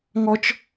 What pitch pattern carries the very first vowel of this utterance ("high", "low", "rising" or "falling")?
high